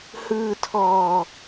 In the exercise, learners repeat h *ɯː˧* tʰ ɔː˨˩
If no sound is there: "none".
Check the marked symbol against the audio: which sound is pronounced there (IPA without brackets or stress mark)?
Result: ɯː˧